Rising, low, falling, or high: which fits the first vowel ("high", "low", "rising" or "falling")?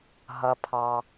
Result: low